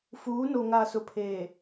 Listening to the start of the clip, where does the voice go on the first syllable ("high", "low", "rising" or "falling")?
rising